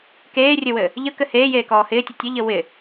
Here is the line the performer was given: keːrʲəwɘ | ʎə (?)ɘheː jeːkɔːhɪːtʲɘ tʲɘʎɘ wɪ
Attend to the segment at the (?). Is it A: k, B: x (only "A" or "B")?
A